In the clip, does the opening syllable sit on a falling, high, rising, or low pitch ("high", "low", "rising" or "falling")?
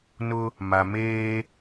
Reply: high